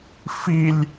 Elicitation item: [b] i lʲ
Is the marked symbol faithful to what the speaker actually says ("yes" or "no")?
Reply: no